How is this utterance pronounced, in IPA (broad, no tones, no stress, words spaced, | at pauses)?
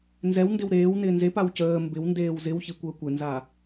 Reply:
nzɛwndɪw ɾeːwnɪː nzepaw cəː mbɪwndeːw zɪwçikʷəː kʷɪnza